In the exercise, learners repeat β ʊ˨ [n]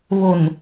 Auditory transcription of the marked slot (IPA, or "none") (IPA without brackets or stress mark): n